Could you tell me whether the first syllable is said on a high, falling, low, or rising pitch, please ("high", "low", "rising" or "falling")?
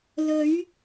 rising